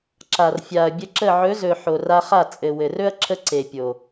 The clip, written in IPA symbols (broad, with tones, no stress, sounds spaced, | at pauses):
ǁ a˨ r fʲ a˨ ɐ̯ bʲ ə˧ ǁ ə˦˨ ʕ ɵ˨˦ z ɵ˨ ħ o˨ r a˧ χ a˦˨ t͡sʼ ɘ˨ w ɘ˨ r ɵ˦ ɐ̯ ǁʰ ə˦ ǀ e˨ pʲ o˨